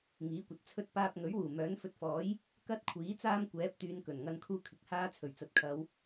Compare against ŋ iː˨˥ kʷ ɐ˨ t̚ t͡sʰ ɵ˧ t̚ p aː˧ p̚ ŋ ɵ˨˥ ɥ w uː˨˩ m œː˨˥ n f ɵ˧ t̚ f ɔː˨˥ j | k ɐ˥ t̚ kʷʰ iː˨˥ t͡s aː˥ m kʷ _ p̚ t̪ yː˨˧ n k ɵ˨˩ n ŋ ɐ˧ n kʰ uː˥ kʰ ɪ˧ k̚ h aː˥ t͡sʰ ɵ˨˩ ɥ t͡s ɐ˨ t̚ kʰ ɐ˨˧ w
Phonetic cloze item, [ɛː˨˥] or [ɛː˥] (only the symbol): ɛː˨˥